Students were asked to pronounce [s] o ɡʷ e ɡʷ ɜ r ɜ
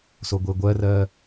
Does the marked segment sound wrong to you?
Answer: no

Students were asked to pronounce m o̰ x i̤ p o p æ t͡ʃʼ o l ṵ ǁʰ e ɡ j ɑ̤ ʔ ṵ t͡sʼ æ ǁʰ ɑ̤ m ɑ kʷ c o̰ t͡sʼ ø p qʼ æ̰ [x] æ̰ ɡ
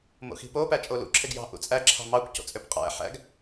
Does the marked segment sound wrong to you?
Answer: yes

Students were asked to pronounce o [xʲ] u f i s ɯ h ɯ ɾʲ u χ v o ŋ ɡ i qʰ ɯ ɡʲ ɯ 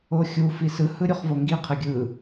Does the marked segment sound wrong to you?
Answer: no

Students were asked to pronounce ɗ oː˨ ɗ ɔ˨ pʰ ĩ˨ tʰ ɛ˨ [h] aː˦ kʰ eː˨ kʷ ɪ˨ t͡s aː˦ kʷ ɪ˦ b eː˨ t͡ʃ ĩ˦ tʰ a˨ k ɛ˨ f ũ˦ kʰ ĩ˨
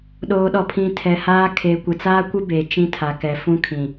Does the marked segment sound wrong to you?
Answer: no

